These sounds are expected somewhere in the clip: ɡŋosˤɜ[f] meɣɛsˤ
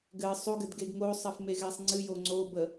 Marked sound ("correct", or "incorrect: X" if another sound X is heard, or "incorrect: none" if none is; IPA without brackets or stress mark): correct